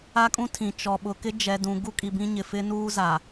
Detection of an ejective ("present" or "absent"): present